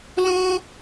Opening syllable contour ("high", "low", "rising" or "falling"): high